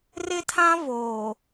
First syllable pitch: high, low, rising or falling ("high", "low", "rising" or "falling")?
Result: high